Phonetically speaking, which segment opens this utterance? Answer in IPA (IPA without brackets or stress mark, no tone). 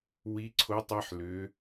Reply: w